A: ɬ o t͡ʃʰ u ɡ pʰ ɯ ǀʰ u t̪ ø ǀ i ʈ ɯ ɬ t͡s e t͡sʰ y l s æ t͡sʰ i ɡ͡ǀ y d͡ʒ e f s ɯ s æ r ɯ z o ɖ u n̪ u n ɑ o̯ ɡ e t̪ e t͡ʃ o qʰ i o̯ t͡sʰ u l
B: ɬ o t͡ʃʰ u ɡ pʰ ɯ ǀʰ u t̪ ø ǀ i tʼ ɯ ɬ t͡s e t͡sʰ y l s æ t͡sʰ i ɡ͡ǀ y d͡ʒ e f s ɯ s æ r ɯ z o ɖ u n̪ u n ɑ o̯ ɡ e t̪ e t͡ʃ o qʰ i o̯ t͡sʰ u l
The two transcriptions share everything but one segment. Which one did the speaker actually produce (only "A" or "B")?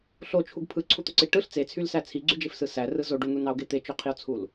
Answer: A